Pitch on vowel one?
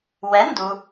rising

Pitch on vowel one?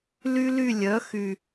high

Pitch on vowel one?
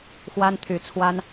high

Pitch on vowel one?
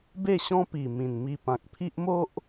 falling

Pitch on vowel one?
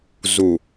low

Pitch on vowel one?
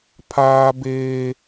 high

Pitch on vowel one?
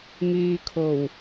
low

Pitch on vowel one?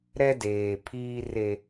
high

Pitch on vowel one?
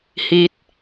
falling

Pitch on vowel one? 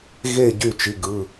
falling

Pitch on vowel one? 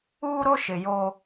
high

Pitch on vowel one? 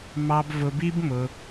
high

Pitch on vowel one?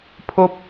high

